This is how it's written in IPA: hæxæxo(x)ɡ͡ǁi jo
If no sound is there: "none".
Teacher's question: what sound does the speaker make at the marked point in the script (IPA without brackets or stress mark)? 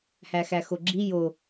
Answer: none